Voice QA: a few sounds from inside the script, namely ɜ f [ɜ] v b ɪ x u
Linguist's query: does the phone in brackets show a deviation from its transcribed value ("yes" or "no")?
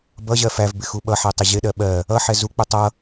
yes